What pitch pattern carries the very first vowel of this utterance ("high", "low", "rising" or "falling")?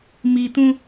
low